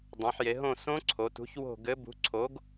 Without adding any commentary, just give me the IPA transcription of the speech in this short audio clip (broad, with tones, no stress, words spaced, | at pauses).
dˤẽ˩˧ħje˩˧ɦõ˦˨ sõ˦˥ǀʰo˩˧tṳ˨˥ç wo̤˦˨ ɡɘ˨˥ bṳ˨˥ǀʰo˨˥ɡ